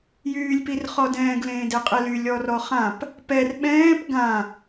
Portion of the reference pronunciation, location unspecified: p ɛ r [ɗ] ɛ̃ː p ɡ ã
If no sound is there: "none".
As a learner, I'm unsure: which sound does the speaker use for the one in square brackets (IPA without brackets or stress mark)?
ɓ